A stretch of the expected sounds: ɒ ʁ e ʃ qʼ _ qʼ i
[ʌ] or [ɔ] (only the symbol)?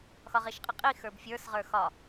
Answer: ʌ